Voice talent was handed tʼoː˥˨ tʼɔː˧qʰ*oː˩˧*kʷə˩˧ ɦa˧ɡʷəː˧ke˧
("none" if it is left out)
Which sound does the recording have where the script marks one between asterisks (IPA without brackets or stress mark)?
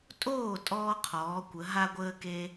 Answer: ɔː˩˧